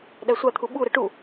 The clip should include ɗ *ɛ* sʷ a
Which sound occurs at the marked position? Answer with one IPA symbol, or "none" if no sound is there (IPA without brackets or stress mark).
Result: æ